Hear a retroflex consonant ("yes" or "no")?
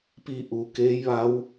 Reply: no